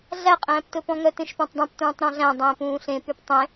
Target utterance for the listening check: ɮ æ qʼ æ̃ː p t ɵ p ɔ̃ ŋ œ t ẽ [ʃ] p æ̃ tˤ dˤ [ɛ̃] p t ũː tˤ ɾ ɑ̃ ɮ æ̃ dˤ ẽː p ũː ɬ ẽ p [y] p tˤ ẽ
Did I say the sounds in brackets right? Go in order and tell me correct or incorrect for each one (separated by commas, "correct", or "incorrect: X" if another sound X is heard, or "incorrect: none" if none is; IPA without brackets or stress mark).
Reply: correct, incorrect: æ̃, correct